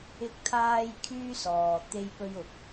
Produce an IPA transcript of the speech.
ɪ˧ k̚ t̪ʰ aː˧ j kʰ yː˥ s ɔː˨ t̪ e˧ j p ɵ˧ ɥ ʊ˨ k̚

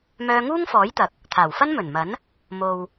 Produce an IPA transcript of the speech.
m œː˧ ŋ uː˥ ŋ f ɔː˨˥ j t̪ ɐ˨ k̚ | t̪ʰ aː˨˩ w f ɐ˥ n m ɵ˨˩ n m ɐ˨˥ n | m o˨ w

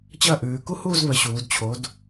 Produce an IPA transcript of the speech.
t͡ɕ ɐ˥˧ ʔ ʉː˩˧ k u˥ h uː˥˧ z β ə˩˧ ɕ uː˩˧ d t͡ɕʰ o˨˥ d

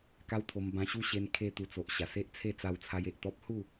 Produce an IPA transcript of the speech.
k a˦ w t̪ʰ o˧ m b ã˧ ɕ u˦ ɕ e˧ n kʰ e˧ t̪ u˧ t͡s o˨ ʔ ɕ a˨˩ s e˦ ʔ t͡sʰ e˥˧ t͡s a˧ w t͡sʰ a˧ j e˨ ʔ t̪ ɔ˦ p̚ h u˥˧

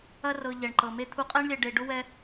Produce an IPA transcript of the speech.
ɐ˦ r ɤ˧ ʎ ɛ˨ ɳ ǃ ɤ˨ m e˧ t̪ʰ u˧ qʼ ɛ˦ ɳ lʲ ɛ˧ ɖ e˧ ɖ ʊ˦ w ɛ˦

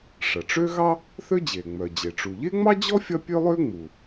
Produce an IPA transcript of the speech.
ʂ ɐ˩ ʈ͡ʂ ø˥ ɣ ɑ˥ | θ ø˥ d͡ʑ e˩ ŋ͡m œ˩ d͡ʑ e˩ ʈ͡ʂ u˩ ʎ e˥ ŋ͡m ɑ˥ d͡ʑ ɔ˥ fʲ ɐ˥ pʲ ø˥ lˠ ø˥ ŋ͡m u˩

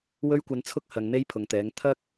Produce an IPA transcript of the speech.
w ɵ˥ ɥ kʷ ɐ˧ n t͡sʰ ʊ˥ k̚ h ɐ˨˧ ŋ n̪ e˥ j pʰ ʊ˨ ŋ t̪ ɛː˨˥ ŋ t̪ʰ ɐ˥ k̚

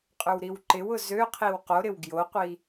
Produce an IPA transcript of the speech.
qʼ ʏ w ɾ i w ǃ ɪ w ʊ z ø qʰ i w q o ɾ ɪ w ɡ j o qʷ i

